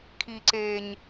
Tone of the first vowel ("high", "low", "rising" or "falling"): low